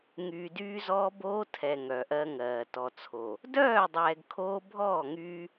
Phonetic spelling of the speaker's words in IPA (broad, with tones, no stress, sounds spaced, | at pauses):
ŋ yː˨ d yː˦ z ɔː˦ b oː˦ tʰ ɛ˨ ŋ œ˨ ʔ ɜ˦ ŋ ɜː˨ t ɔ˨ t͡sʰ o˨ | d œː˦˨ dˤ ɛː˨ ɡ kʰ oː˦ bʱ ɔː˦˨ ŋ yː˦